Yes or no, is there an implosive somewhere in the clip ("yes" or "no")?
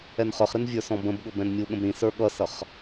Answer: yes